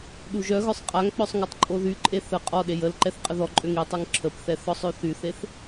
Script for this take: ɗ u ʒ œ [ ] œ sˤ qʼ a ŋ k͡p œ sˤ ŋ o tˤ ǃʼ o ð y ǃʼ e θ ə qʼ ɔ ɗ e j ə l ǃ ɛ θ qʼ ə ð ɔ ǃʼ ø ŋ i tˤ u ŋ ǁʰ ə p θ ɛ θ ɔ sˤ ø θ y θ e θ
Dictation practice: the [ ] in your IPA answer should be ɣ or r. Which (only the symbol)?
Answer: ɣ